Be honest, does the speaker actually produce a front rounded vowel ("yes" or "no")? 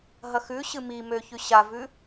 yes